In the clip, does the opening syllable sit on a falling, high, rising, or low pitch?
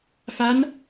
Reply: rising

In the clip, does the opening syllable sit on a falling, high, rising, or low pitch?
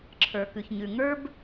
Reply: low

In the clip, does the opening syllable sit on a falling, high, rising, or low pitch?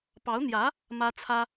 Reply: rising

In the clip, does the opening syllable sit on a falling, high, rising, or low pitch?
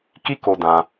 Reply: high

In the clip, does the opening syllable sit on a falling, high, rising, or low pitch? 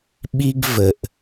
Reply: high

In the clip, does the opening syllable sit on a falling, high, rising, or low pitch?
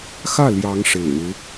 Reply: falling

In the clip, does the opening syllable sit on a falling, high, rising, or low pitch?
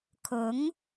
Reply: rising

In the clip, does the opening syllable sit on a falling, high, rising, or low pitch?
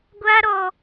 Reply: high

